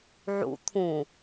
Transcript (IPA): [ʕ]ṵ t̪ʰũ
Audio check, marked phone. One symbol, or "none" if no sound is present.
ʕ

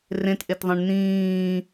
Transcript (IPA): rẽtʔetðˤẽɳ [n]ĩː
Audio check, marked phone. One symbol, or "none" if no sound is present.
n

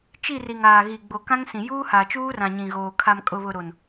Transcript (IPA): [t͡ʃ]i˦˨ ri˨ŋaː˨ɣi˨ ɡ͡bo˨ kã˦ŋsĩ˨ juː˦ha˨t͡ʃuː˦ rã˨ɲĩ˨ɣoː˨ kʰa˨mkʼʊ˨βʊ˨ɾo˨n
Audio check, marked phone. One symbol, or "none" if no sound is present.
t͡ʃ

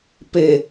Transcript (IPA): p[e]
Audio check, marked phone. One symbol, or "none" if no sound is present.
e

